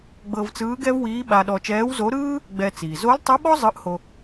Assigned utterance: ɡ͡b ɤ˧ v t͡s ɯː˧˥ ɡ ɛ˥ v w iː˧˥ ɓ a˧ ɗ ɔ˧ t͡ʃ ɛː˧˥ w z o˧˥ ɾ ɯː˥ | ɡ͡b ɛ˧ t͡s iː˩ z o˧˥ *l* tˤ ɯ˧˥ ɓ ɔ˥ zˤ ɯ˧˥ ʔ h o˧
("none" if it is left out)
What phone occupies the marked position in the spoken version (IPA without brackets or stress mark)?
l